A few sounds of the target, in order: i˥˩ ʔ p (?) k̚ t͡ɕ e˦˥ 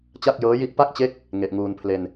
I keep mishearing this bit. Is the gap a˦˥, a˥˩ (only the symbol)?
a˥˩